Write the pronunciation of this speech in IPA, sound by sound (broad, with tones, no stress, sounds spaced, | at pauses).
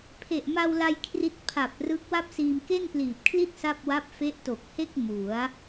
pʰ e˨˩ ʔ m a˧ w l a˧ j kʰ r i˦˥ t̚ pʰ a˨˩ p̚ r ɯ˦˥ k̚ w a˥˩ p̚ s iː˧ m k e˥˩ n p l iː˨˩ p̚ kʰ l i˥˩ t̚ s a˥˩ p̚ w a˦˥ p̚ f e˦˥ ʔ t o˨˩ k̚ h e˥˩ k̚ m u˩˦ a̯